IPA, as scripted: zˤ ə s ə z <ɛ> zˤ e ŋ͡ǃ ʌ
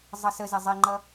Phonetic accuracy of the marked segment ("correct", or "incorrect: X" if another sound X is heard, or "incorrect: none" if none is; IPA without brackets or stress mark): incorrect: e